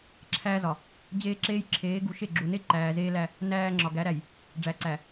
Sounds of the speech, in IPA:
ǁʰæː˦zɒ˨ | d͡ʑeː˦ǁeː˦jǁʰeː˨˦ ɡu˨ʃe˦˨ɡ͡ǁu˨ne˦ ǃæː˨zeː˦læ˦ | næː˦ ŋ͡ǁɒ˨ɡæ˨˦ɾæ˨j | ɖ͡ʐæ˨ǀæ˨

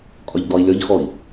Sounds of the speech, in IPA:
kʼɒʎɡɒi̯lʲɒʎxɔi̯

